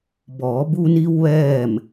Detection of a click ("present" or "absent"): absent